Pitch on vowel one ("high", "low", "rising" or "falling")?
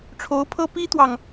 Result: rising